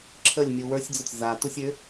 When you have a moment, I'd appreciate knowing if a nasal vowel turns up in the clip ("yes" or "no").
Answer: no